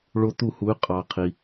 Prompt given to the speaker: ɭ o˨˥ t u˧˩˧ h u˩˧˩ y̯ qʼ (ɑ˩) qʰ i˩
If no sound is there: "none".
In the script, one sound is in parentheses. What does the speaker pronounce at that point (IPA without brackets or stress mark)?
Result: ɑ˩